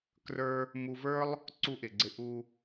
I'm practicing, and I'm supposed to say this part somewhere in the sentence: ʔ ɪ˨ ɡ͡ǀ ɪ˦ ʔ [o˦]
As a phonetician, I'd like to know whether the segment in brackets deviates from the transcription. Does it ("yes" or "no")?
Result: yes